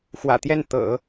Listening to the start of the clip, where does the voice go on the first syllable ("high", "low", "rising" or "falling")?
low